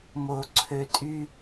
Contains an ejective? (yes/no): yes